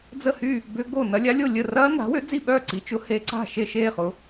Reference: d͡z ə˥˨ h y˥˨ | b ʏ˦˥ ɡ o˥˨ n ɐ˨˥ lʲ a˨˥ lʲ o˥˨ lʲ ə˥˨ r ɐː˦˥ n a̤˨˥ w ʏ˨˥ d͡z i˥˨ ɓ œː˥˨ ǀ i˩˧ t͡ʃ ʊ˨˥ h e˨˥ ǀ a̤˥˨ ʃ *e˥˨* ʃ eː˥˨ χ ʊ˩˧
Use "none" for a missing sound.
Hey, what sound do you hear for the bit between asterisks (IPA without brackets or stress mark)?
e˥˨